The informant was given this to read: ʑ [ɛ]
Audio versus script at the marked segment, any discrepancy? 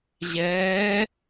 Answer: yes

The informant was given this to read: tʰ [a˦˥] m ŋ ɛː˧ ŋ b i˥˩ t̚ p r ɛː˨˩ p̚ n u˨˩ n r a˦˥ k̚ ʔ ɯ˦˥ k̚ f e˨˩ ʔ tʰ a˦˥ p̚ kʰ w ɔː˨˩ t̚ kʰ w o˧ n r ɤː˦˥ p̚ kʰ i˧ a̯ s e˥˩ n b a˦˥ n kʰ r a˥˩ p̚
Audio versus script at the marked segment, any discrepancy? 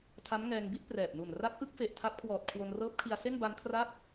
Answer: no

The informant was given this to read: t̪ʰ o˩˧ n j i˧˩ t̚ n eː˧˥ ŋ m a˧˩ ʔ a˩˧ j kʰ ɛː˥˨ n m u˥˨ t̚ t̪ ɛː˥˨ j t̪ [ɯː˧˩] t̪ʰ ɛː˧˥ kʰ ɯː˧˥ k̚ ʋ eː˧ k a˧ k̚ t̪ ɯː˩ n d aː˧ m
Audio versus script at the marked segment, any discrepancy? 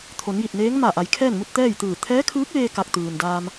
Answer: no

